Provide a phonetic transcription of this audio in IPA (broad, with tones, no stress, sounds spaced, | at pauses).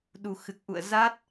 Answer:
ɗ u˨˩ x ɨ˨˩ k̚ ʔ ṵ˧˨ ə̯ z a˦˥ t̚